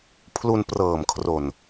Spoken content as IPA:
pʰlu˧nprɤː˨˩mkʰro˨˩n

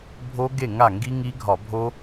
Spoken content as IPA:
bʱo˦˥ɡe˥˩ ŋa˥˩ ŋɡi˦˥ŋi˦˥ɡʱɒ˧˩˧ bʱo˦˥

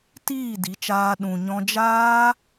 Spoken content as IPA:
tiː˦˨di˨˦t͡ʃaː˧ ɗũ˨ɲɔ̃˧ d͡ʒaː˦

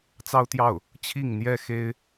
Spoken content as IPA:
t͡sɑ˥ʊ̯t̪jɑ˥˩ʊ̯ | t͡ɕʰi˥˩ŋn̪jɛ˥xe˥ɪ̯

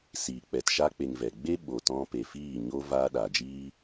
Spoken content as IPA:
siː˨ k͡pɛ˨tʃa˧k͡pe˨ŋ vɛ˨ɡ͡be˦ ɓo˨tɔ̃˧pe˨ fiː˦˨ɲo˦ vaː˧ɗa˨d͡ʒiː˦

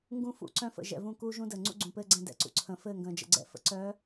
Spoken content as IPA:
ŋɡũ˦ fṵ˨ǀœ̃˦fə̰˨ ʒɛ̰˨vũ˦˨ kuː˦ʒũ˦dəː˨ ŋ͡ǀṵ˦ɡ͡ǀũ˨pɘː˦ɡ͡ǀɛ̃˦˨ dɛ̰˨ǀṵ˨ǀʰə̃ː˨ fɘː˦˨ŋɡə̃ː˨d͡ʒə̰˨ɡ͡ǀɛ̰˨ fə̰˨ǀœ˨˦

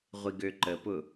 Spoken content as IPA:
ʁʷiɡøǃəpʊ

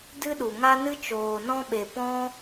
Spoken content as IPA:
dɨ˦ɗu˨ŋa˦ nɨ˦t͡ʃoː˨nɔ̃˦ɓe˨ pɔ̃˦

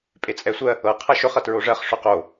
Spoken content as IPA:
pʼet͡sʼɛsʷɜ | ɤ qʰʌʃɵχ ʌtɹoʐɜχ ʂɵqo

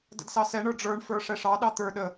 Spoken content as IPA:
də̰dsɑsɛ ɳə˞ɖ͡ʐə˞ɳ fə˞ʂɛʂɑ ɗɑt̪ə˞ ɗə

